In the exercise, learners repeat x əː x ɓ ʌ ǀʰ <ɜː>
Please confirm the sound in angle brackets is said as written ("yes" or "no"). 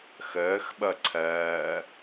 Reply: yes